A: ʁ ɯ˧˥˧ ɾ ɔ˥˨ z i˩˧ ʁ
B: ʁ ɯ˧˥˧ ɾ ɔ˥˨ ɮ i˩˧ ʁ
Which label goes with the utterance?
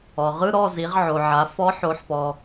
A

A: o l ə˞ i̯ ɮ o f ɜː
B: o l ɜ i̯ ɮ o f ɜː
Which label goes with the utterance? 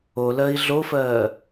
B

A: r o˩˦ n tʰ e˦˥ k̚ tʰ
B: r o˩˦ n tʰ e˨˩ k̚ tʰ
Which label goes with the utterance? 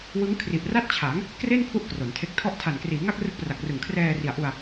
A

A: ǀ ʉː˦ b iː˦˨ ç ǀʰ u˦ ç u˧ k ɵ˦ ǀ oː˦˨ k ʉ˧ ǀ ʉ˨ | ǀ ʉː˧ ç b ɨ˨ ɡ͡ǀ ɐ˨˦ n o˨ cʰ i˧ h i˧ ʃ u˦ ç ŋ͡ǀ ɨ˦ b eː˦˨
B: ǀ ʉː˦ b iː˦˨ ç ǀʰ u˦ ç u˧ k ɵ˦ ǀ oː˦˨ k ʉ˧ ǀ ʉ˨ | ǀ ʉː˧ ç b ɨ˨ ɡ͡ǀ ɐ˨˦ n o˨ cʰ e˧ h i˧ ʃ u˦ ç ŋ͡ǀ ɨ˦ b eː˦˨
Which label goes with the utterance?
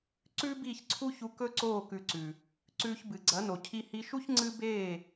A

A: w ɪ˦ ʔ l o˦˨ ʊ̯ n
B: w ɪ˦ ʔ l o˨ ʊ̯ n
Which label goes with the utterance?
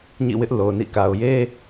B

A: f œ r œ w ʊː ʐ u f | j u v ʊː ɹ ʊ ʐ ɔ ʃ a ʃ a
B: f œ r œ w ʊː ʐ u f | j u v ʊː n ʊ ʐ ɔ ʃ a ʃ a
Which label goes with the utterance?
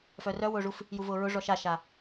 A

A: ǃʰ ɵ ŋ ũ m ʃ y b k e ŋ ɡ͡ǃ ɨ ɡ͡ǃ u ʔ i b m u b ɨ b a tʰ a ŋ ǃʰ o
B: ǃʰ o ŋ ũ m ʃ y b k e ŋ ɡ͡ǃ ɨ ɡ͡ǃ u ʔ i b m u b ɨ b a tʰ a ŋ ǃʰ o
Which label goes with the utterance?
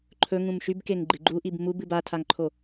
A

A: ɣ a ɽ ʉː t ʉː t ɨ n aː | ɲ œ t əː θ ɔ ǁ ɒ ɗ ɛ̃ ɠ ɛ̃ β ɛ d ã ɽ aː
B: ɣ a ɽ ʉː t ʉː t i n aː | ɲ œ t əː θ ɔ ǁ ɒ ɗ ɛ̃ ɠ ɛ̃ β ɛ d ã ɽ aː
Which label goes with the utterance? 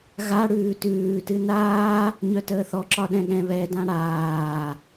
A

